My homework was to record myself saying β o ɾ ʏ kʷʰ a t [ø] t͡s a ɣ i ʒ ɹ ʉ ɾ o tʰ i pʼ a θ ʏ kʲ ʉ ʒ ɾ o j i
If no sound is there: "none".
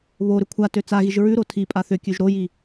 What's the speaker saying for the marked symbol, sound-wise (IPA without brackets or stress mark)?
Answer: ø